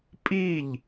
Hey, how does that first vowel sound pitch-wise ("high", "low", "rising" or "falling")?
falling